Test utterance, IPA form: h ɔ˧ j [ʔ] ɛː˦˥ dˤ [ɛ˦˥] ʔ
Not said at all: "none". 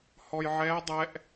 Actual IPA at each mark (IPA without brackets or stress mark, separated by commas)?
ʕ, ɛ˦˥